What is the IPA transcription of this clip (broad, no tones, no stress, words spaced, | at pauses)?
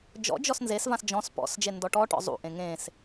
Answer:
d͡ʒɔ̰d͡ʒɔs nzesvãs d͡ʒɔ̃s pɔ̰sd͡ʒe ndɔʈɔʈɔ̰ zˤṵʔẽ ŋẽs